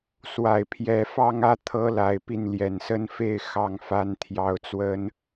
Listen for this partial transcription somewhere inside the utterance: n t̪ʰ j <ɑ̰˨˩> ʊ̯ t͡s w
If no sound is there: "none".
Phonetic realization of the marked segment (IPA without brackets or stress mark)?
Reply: ɑ˥